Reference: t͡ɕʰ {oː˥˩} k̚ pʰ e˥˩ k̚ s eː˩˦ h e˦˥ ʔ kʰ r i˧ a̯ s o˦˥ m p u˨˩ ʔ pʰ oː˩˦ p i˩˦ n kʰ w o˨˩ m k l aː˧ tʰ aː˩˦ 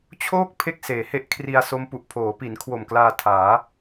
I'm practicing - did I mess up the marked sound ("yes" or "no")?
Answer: no